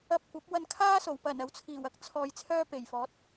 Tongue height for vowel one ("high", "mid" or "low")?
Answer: low